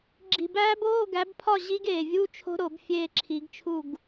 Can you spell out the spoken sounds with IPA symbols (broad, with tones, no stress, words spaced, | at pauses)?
ɡ͡ǁi̤˨˩bæː˦˥b oː˧˥˧ɡæ˨˦bpʰɒ˥˨ ʑi˦˥ɡ eː˨˩vʲu˧˥˧t͡ʃʰo̤˦˥ ɾo˧˩˧b fʲeː˥˨ǁʰi˨˦ɡt͡ʃʰu˥˨ɡ